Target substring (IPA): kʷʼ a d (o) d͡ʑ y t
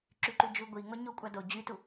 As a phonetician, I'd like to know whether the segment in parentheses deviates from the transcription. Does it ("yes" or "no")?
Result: no